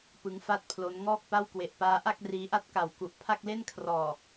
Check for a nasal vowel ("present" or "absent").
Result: absent